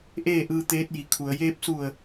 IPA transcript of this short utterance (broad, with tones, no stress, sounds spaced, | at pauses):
ʔ eː˥˨ ʔ ɯː˧ t̪ eː˧˥ t̚ j i˩˧ kʰ u˩˧ ə̯ j eː˧ p̚ s u˧˩ ə̯